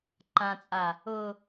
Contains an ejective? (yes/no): yes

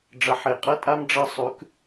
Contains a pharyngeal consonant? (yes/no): yes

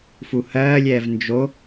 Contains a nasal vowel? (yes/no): no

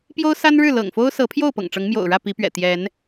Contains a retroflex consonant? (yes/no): yes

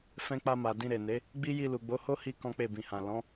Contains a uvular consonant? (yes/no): no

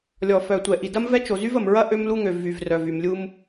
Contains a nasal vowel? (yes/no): no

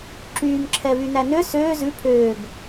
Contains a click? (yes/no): yes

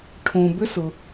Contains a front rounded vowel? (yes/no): yes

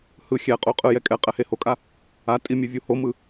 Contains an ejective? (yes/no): yes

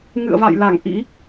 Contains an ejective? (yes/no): no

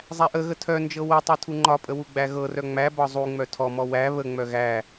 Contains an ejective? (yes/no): yes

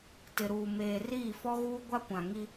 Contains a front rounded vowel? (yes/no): no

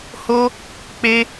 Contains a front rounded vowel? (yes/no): no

